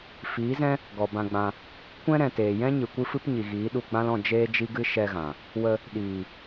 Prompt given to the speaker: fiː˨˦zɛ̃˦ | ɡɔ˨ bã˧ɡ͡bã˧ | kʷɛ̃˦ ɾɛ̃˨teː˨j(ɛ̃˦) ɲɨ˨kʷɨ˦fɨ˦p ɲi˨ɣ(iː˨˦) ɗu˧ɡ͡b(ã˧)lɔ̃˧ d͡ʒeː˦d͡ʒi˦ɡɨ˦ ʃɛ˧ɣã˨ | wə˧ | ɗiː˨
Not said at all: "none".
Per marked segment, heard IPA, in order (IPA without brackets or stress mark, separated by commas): ɛ̃˦, iː˨˦, ã˦